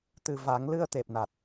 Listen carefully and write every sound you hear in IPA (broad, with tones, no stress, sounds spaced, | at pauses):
t̪ ɨ˨˩ v a˨˩˦ ŋ l ɨ˧ ə̯ t̪ e˨˩ p̚ n a˨˩ t̚